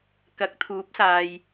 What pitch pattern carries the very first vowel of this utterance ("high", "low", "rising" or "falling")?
rising